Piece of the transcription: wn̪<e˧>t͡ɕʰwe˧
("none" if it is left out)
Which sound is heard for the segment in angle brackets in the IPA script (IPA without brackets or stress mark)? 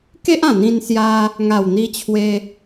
i˧